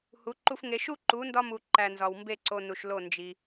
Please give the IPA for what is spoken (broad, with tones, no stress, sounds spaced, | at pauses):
h u˨˦ ǃ u˧ f ŋ e˧ ʃ u˦ ǃ u˨˦ n d ɒ˧ m u˨ ǃ æ˨ n z ɒ˨ w m b e˦˨ ǀ o˧ n u˨ ʃ l o˦˨ n d͡ʒ i˧